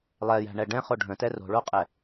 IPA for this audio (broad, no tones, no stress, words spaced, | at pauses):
lˠɛjæ̤ɳɛ ɖɛ̃χo ɖʱə̃tɛ ro̤ɭoqʼɛ